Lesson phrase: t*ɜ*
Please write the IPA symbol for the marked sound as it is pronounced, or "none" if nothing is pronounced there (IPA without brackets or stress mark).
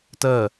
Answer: ɜ